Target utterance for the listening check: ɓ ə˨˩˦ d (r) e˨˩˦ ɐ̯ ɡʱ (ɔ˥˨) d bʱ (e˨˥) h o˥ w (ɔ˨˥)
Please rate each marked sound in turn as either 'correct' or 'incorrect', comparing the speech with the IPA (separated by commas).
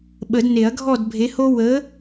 incorrect, correct, correct, incorrect